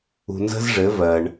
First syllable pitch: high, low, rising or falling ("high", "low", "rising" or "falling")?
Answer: low